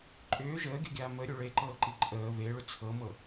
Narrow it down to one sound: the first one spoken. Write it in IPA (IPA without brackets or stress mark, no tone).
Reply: ǃʼ